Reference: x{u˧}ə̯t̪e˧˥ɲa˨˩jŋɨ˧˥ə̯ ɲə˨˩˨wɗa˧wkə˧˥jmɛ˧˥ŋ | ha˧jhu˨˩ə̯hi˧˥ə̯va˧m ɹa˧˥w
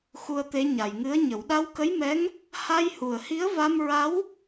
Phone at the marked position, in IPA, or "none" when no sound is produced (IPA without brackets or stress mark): u˧